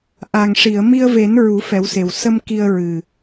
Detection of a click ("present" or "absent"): absent